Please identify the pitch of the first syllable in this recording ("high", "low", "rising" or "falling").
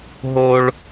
high